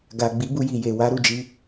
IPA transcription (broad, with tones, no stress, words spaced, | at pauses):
ɡa˨ ɡ͡bi˨˦ bu˧ji˨je˨ wa˨˦ɾu˦˨d͡ʒi˧